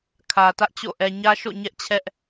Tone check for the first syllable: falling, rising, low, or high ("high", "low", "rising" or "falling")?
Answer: low